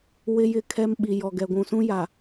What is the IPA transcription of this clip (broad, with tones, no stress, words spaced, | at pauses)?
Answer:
wɪ˦jɪ˦˨ kʰɛ˦mɓi˨jɔ˨ ɡɛ˨ɡʷũ˨sũ˦ja˨